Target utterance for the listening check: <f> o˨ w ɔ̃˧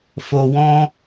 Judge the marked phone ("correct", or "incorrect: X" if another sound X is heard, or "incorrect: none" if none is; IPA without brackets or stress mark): correct